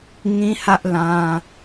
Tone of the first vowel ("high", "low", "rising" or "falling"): high